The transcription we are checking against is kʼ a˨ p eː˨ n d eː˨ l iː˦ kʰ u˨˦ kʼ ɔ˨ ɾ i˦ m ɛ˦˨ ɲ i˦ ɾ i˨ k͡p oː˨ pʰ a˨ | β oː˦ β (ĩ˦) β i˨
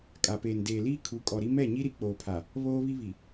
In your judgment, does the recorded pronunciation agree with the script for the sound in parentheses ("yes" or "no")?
no